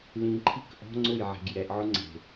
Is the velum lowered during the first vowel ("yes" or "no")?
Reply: yes